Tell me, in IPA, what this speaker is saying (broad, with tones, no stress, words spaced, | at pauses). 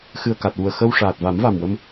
xɨ˨˩ə̯ka˨˩t̚wu˨˩ə̯ xə˧w ʂaː˨˩t̚va˨˩˦mva˨˩mwə˧m